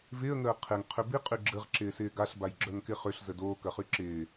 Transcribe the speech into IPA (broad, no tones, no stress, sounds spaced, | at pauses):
v ɪː ə̯ ŋ əː qʰ ɪ ŋ qʰ ʏ b i qʼ y ɡ͡ǁ ə ʁ ǁ ɪː s ɪː ɡ a ɬ b a j ɡ͡ǁ œ ŋ k ɪ χ ø ɬ z ə d oː k ɐ χ y ǁ ɪː